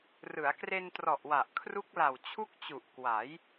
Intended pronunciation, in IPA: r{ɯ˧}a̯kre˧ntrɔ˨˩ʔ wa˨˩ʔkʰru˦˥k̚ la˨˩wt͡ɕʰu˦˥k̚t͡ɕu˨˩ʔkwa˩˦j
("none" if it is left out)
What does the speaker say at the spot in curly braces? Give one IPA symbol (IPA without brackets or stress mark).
ɯ˩˦